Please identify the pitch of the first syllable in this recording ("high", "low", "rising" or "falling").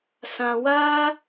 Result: low